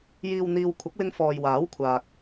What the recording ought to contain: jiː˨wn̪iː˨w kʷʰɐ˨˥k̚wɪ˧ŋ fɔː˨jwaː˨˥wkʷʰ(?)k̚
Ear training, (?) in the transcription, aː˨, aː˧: aː˨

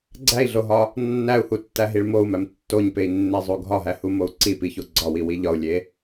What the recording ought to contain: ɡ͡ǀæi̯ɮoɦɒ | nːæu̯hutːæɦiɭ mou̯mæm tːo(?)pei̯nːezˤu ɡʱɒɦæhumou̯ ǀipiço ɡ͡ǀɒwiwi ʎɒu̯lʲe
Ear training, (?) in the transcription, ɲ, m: ɲ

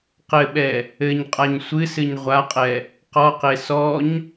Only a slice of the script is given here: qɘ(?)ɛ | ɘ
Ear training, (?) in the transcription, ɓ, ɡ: ɓ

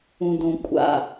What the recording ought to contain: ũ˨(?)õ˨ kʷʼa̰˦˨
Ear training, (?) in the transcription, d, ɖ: d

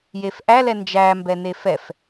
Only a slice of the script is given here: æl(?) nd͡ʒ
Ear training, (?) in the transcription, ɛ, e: ɛ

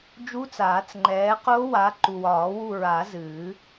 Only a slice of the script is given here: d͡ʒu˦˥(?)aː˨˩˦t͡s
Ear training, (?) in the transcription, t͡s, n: t͡s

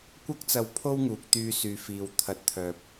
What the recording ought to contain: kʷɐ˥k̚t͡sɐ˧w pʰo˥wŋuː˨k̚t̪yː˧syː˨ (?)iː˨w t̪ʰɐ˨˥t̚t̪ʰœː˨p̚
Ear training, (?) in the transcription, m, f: f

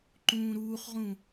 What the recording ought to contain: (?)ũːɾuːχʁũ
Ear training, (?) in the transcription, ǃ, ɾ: ǃ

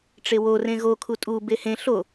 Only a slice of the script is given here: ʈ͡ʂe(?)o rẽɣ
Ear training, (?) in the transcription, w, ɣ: w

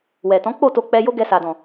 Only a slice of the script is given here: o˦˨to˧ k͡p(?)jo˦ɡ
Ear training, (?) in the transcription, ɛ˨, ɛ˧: ɛ˧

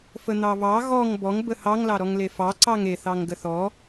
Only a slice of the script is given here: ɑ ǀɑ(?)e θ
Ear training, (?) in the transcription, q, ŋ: ŋ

